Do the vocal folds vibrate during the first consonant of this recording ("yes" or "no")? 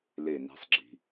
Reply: yes